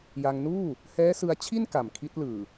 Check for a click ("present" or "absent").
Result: absent